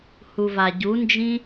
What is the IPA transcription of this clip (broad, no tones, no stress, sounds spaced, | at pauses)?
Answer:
h u v a ɟ u n d͡ʒ ĩ